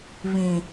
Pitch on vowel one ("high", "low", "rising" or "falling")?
low